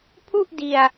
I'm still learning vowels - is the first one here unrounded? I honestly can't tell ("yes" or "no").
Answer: no